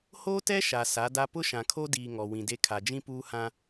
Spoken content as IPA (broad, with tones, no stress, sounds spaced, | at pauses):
h oː˦ t ɛ˦ ʃ a˨ s a˨˦ d a˦ p ʊ˦ ʃ ã˨ kʰ o˦ d iː˨ ŋ ɔ˨ w ĩ˨ d e˦ kʰ a˨ d͡ʒ ĩ˦ p uː˦ h ã˦